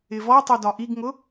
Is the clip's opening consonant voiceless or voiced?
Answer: voiced